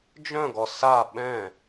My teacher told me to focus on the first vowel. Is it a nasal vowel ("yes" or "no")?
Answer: yes